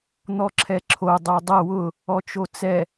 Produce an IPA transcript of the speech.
n̪ ɔ ǁʰ ɛ ǁʰ o dˤ o dˤ ɐ w ʊ | ɔ t͡ʃ o t͡s ɛ

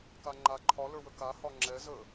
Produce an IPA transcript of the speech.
k a ŋ͡ǃ a ǃʰ ɒ l ə˞ w ə k a h ɒ ŋ͡ǁ ɛ z ə

